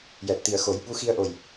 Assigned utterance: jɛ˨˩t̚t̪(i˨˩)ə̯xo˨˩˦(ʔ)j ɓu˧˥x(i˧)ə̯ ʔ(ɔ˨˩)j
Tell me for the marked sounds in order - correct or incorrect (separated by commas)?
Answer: correct, incorrect, correct, incorrect